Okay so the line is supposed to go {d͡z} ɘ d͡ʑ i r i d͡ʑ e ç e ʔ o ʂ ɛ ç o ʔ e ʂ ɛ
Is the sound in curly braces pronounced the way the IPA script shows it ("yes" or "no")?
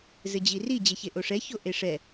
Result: no